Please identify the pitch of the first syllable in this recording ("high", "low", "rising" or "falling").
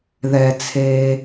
low